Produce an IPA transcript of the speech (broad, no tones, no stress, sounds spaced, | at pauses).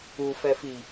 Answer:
u f ɛ f i